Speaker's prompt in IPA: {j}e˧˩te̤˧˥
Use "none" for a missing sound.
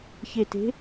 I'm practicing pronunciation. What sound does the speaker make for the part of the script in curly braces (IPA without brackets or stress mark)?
ç